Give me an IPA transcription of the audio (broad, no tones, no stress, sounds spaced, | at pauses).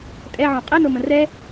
tʼ ɛ ʕ õ qʼ ɛ n o m ə̃ r ɛ